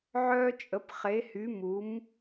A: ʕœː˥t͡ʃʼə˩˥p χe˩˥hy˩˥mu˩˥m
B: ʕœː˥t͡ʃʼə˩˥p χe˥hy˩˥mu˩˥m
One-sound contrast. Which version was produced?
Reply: A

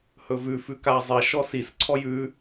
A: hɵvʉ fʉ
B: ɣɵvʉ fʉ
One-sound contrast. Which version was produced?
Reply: A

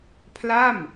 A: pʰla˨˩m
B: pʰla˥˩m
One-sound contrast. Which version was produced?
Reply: B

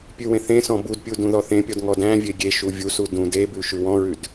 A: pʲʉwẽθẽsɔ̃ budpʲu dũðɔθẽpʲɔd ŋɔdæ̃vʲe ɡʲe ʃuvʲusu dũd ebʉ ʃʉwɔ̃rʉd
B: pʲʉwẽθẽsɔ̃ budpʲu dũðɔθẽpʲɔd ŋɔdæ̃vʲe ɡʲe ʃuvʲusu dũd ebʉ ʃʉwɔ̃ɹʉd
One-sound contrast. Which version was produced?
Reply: B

